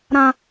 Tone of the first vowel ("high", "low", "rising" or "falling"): high